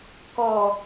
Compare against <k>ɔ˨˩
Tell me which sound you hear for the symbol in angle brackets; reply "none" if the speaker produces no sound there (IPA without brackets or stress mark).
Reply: k